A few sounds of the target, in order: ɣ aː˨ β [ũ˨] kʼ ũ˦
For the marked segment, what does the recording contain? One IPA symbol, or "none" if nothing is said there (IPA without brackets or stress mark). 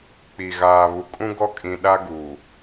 u˨